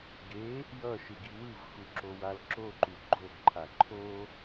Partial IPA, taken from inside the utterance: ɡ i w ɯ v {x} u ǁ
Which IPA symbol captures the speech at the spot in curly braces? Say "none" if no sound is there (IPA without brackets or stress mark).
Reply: x